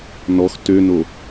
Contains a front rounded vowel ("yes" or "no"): yes